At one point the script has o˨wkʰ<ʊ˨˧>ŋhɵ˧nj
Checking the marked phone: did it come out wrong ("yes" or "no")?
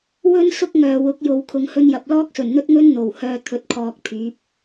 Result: no